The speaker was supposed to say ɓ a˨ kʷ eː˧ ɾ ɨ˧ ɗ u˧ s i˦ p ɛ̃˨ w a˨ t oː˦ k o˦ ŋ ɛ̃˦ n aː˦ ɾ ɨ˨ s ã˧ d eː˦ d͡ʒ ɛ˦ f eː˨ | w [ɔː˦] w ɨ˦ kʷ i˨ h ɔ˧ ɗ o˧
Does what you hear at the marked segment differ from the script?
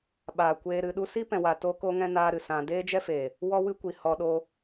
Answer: yes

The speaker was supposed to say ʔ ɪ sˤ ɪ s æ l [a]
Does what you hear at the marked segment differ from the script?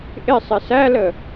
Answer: yes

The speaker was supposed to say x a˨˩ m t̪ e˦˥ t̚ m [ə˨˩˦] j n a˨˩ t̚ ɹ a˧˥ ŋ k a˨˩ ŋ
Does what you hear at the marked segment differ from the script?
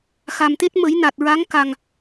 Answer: no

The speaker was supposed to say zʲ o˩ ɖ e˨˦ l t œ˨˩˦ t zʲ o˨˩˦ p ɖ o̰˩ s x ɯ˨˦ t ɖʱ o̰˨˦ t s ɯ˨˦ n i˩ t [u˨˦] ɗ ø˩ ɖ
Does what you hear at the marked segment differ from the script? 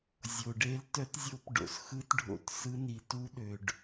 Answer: no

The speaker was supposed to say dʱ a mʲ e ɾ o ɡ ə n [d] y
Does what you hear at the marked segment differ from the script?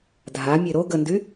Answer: no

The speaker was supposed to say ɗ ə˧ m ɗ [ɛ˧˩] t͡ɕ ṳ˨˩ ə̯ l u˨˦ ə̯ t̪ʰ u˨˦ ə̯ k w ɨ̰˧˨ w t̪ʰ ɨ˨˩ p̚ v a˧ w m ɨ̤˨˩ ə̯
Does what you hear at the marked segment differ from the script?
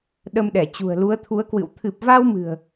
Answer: no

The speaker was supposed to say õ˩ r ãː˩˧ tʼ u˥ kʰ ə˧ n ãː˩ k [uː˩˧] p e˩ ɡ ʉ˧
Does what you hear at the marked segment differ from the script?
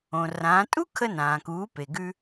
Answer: no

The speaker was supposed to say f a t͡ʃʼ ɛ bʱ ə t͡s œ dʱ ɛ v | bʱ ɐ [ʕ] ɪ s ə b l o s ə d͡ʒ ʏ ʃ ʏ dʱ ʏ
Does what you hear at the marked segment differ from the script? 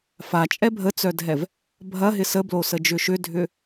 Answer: yes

